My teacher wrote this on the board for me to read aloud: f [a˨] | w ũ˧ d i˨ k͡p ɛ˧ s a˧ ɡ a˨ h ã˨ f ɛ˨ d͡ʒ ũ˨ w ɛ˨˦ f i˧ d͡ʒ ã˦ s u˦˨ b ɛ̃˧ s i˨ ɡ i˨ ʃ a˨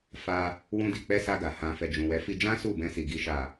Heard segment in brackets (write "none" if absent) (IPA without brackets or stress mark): a˧